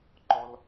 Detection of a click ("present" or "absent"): present